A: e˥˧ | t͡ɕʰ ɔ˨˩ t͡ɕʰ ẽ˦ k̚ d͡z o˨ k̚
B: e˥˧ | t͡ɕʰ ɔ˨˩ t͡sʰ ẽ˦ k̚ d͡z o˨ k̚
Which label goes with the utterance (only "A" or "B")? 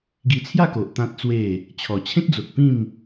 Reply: A